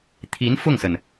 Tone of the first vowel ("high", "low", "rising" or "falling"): rising